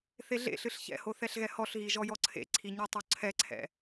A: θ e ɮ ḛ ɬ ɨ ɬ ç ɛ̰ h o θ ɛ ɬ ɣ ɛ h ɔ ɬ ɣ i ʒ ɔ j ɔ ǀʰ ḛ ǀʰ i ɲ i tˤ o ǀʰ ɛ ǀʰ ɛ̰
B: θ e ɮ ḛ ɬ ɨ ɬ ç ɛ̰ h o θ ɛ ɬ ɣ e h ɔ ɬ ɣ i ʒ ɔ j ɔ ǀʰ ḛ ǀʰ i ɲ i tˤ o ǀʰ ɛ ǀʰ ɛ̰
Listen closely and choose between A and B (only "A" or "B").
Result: A